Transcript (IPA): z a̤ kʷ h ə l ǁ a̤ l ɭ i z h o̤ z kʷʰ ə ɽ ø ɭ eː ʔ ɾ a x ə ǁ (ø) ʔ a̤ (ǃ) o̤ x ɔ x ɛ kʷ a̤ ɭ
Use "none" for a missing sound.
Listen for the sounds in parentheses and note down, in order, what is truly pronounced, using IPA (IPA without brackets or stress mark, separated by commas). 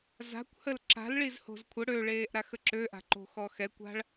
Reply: ø, ǃ